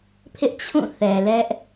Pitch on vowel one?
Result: high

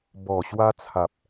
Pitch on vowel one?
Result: low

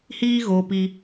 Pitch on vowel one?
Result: high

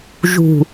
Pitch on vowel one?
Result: low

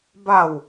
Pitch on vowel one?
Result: falling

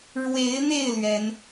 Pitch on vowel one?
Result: rising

